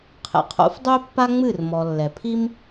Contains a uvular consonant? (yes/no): yes